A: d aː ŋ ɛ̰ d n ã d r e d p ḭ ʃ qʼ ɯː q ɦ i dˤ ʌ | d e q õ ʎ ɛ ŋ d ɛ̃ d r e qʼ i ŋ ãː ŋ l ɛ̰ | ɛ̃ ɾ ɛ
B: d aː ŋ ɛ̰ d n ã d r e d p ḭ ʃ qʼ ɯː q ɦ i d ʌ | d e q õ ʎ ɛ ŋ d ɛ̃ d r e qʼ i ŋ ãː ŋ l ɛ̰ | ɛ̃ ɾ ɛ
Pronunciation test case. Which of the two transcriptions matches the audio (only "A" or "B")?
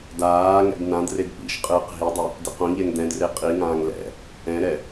A